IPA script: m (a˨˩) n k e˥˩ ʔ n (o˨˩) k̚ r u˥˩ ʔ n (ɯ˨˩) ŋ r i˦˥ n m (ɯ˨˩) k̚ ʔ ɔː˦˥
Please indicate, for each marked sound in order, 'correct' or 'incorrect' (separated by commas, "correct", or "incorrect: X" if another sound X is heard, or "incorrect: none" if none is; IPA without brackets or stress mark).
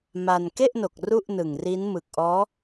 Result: incorrect: a˧, correct, correct, correct